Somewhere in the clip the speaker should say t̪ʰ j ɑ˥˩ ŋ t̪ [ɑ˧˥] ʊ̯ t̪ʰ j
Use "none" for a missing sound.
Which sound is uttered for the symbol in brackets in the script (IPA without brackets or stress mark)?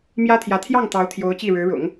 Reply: ɑ˧˥